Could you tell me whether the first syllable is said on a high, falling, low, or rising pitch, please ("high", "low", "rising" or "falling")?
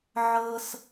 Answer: high